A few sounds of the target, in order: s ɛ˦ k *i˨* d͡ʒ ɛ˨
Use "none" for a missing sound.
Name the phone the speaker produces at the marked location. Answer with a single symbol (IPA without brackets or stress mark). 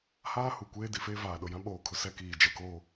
iː˨